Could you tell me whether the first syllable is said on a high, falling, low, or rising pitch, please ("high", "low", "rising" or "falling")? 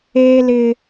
high